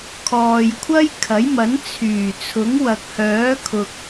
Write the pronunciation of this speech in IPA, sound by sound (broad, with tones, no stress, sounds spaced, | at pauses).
kʰ ɔː˨ j kʷʰ ɐ˥ j kʰ ɐ˨˥ j m ɐ˨˥ n t͡sʰ yː˨˩ t͡sʰ ʊ˨˥ ŋ w ɐ˨ k̚ h œː˨˥ kʰ ʊ˨ k̚